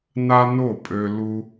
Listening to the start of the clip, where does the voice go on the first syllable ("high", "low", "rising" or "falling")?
high